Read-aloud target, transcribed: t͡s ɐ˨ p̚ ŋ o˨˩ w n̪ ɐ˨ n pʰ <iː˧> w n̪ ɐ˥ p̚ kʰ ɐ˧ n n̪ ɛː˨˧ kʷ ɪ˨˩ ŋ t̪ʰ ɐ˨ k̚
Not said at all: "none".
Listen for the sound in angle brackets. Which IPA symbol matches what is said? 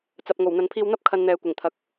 iː˧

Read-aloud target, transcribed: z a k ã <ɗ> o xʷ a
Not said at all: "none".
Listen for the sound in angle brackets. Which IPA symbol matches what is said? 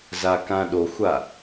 ɗ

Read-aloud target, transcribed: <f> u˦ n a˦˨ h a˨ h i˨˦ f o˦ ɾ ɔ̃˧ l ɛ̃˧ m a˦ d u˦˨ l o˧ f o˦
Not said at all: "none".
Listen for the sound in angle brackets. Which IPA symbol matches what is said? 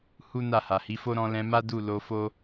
h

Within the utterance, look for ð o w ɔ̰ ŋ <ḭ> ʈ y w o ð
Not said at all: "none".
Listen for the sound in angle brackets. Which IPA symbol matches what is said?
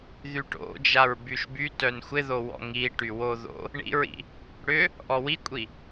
i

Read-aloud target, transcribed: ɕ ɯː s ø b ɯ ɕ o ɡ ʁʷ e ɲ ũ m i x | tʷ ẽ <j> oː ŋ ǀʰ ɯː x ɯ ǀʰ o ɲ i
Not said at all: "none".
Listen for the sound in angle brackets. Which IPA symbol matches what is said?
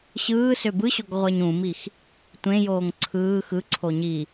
j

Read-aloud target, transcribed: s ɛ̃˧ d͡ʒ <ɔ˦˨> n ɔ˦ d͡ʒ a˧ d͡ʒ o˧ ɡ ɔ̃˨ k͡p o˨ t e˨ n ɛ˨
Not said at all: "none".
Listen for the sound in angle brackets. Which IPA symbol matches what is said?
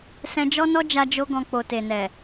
ɔ˦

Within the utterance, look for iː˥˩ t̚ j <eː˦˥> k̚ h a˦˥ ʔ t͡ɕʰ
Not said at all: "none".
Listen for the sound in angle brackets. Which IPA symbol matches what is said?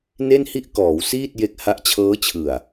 e˦˥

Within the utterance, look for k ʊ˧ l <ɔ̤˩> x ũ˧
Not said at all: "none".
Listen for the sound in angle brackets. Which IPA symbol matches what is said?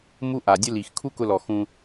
ɔ˩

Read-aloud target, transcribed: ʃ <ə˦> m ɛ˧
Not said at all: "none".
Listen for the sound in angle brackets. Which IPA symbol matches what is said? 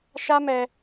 a˦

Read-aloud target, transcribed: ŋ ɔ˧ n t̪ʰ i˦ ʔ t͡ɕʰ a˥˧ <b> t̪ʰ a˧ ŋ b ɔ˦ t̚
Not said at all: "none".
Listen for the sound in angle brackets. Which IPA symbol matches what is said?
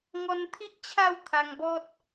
w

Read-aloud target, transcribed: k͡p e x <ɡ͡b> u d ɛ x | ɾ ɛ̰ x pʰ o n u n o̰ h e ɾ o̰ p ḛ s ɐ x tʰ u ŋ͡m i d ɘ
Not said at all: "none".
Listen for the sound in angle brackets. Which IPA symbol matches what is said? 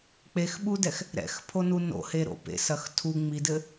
ɓ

